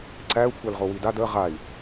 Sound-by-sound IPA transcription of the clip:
ǀ æ u̯ kʷʰ æ l ʁ o w i d a d ə ʁ a i̯

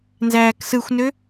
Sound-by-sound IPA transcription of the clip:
n z æː k s ɯ xʷ n ø

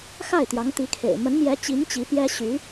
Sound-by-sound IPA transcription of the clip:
x a˥˩ ɪ̯ t̪ j ɑ˧˥ ŋ t̪ i˧˥ kʰ ḛ˨˩ ɪ̯ m ə˧˥ n m j ɛ˧˥ t͡ɕ i˧˥ ŋ t͡ɕ i˧˥ p j ɛ˥ ɕ y˧˥

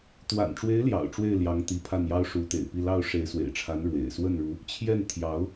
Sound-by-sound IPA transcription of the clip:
t̪ w a̰˨˩ n ʈ͡ʂ w e˧˥ ɪ̯ l j ɑ̰˨˩ ʊ̯ ʈ͡ʂ w e˥˩ ɪ̯ l j ɑ˧˥ ŋ t̪ i˧˥ pʰ a˥˩ n j ɑ˥ ʊ̯ ʂ u˧˥ t̪ ḛ˨˩ ɪ̯ p i˥˧ l ɑ˥˩ ʊ̯ ʂ e˧˥ ɪ̯ s w ḛ˨˩ ɪ̯ ʈ͡ʂʰ a˧˥ n ɻ w ḛ˨˩ ɪ̯ s w ə˥˩ n ɻ u˧˥ | t͡ɕʰ j ɛ˥˩ n t̪ʰ j ɑ˧˥ ʊ̯

